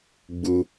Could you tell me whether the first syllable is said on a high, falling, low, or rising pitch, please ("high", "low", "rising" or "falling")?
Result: high